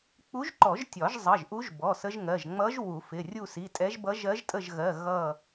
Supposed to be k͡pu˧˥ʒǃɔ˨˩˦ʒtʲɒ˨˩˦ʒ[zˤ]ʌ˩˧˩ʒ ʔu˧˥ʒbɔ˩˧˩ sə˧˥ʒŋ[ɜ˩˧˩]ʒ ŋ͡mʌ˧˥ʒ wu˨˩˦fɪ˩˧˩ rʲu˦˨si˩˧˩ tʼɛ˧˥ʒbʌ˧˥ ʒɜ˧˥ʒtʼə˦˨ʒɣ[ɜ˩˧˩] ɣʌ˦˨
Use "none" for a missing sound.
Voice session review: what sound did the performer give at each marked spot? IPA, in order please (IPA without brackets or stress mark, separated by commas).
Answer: zˤ, ɜ˩˧˩, ɜ˩˧˩